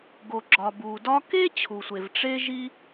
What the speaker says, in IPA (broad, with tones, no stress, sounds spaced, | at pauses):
ɡ o˩ ɡ͡ǁ ɒ˩ b u˩ d ɒ˥ k e˥ t͡ɕʰ u˩ sʷ e˩ v ʈ͡ʂ e˥ ʒ i˥